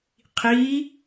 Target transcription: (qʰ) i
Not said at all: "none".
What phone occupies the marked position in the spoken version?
qʰ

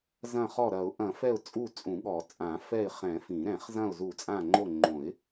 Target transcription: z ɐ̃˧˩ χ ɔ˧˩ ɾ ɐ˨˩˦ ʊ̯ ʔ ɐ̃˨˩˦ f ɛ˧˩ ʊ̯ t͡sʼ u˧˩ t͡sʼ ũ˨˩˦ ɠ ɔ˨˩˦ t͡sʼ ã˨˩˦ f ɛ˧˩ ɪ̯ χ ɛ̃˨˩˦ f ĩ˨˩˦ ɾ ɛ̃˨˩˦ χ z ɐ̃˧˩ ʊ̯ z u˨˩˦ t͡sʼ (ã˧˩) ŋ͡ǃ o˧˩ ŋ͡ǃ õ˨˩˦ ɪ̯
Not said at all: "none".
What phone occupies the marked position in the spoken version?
ã˧˩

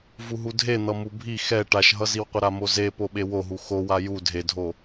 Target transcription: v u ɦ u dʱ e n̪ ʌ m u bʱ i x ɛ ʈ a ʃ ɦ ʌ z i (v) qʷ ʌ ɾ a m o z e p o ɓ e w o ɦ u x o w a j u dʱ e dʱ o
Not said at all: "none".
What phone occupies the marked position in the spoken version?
w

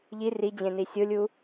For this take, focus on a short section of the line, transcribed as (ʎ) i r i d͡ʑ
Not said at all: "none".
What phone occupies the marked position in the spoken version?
ʎ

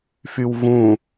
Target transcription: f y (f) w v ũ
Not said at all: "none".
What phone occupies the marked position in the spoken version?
none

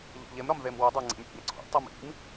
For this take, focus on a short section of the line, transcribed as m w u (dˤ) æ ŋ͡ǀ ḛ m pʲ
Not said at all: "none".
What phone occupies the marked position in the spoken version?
dˤ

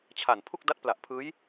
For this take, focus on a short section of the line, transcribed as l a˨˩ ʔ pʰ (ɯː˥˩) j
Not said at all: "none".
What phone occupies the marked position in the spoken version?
ɯː˦˥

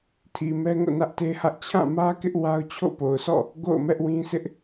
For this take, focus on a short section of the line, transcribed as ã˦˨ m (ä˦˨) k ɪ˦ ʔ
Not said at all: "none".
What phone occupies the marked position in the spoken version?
ä˦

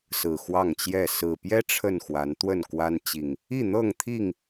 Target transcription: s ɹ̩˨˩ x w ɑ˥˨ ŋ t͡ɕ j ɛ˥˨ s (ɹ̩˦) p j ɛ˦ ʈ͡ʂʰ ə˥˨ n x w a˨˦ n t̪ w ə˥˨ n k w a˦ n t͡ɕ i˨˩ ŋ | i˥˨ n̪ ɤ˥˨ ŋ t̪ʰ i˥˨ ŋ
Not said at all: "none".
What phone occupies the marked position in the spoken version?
ɹ̩˨˩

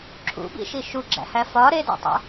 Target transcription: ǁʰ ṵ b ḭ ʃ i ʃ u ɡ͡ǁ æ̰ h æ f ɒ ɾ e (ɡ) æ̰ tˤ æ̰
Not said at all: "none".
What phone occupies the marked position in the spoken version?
d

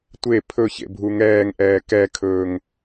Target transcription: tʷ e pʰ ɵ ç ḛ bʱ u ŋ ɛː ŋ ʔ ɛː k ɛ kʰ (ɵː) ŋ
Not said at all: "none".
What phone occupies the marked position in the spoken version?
ɵː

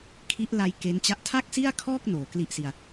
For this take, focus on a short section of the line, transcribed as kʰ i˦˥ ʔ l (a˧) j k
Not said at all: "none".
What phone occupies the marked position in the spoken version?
a˧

